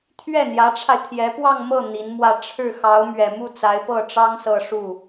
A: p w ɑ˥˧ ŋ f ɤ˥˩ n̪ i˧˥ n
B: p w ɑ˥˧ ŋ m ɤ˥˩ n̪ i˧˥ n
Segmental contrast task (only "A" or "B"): B